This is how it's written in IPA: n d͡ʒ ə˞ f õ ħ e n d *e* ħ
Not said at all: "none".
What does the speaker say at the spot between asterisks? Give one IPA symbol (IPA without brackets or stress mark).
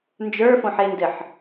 ɘ